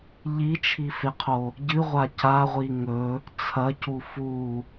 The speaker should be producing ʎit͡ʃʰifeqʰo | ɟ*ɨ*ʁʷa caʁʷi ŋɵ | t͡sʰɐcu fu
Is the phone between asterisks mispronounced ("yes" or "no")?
no